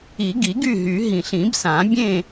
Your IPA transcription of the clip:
i˨˩˦ ɡ i˨˩˦ ɡ y˥˨ ɦ y˨˩˦ ɦ ĩ˨˩ ɬ ĩ˨˩˦ b s ã˨˩˦ bʲ ẽ˥˨

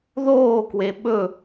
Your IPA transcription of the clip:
ð oː k w e ɓ ɵ

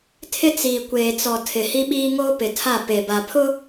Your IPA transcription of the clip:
tʰ ɪ˦ t͡s iː˨ kʷ eː˨ t͡s ɔ˨ tʰ ɪ˨ h i˦ ɓ iː˦ ŋ oː˦ p ɪ˨ tʰ a˦˨ p e˨ b a˨ pʰ ʊ˦

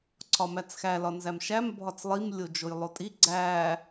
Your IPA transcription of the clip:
ǀʰ ɒ m æ t͡s x æ l ɒ n z æ m ʃ æ m bʱ ɒ t͡s lˠ i m lʲ o d͡ʒ o j lˠ o tʼ i ɡ͡ǀ æ

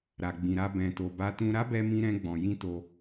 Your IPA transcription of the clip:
ɾ a˨ ɡ͡b ĩ˨ ɾ a˧ b ɛ̃˨ t o˨ b a˧ t ũ˧ ɾ a˦ b ɛ˧ m ĩ˧ ɾ ɛ̃˧ ɡ͡b ɔ̃˨ j ĩ˧ t o˧

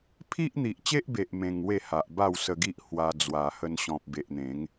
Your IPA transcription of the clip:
pʰ i˦ ʔ n̪ i˨ ʔ t͡ɕ e˦ ʔ b e˨ ʔ m ẽ˧ ŋ w e˥˧ h a˨ ʔ b a˥˧ w s ə˧ ɡ i˦ ʔ h w a˧ d͡z w a˨˩ h ə˧ n ɕ ɔ̃˨ p̚ b e˨ ʔ n̪ ẽ˨˦ ŋ

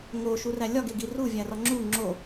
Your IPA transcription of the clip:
ŋ o ʃ u r æ lʲ ɒ ɡ e ɡ i r u vʲ æ r ɒ ŋ͡ǁ u ŋ͡ǁ o

